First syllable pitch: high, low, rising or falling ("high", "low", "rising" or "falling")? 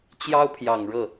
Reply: high